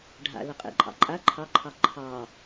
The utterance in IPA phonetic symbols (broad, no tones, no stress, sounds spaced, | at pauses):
ɖʱ a̰ l ə qʼ ḛ ǃʼ ɑ̰ ǃʼ a ǃʰ ɑ ǃʰ ɑ ǃʰ ɑ